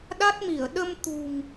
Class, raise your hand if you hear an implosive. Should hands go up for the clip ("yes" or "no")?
yes